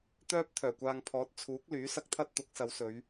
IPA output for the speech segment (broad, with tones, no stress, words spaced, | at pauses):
t̪œː˥p̚ t̪ʰœː˨˩kʷaː˧ŋ pʰɔː˨˥t̚t͡sʰuː˨˥k̚ lyː˨˥sɐ˧k̚t̪ʰɐ˥t̚ t̪ʊ˨˥k̚sɐ˨˧wsɵ˨˧ɥ